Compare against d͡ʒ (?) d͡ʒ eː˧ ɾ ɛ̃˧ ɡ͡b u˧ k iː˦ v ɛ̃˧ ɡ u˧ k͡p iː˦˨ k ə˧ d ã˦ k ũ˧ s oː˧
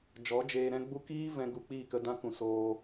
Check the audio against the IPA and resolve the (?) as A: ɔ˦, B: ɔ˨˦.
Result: B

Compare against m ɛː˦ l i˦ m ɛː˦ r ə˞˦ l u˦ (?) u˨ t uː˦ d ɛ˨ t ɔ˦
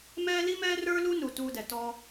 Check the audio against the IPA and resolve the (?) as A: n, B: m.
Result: A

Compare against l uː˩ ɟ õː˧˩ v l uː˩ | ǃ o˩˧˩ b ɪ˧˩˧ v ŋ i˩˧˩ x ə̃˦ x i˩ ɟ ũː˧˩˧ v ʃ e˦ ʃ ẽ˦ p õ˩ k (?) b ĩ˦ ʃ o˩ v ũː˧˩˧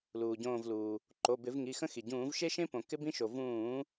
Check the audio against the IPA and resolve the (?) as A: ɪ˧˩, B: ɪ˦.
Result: B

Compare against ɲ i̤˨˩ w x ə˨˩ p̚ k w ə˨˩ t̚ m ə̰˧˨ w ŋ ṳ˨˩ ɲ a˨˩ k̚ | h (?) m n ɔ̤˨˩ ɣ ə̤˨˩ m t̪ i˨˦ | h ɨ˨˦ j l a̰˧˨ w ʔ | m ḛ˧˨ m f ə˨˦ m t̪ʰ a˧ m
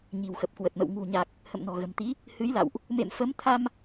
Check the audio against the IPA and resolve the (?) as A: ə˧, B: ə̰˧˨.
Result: B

